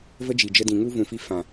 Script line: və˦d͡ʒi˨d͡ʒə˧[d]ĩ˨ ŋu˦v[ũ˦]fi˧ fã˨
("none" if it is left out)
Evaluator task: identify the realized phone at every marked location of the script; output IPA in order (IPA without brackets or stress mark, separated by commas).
d, ũ˨